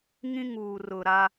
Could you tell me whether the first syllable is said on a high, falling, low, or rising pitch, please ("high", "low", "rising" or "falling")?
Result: high